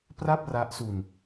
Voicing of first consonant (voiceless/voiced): voiceless